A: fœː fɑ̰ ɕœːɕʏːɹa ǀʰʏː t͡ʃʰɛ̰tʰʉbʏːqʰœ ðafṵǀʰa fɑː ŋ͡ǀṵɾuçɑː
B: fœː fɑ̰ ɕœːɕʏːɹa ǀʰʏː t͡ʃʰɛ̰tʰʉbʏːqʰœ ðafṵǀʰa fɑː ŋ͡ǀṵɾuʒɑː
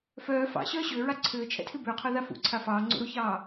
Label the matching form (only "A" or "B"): A